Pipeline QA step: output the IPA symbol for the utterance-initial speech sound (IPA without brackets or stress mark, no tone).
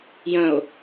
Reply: j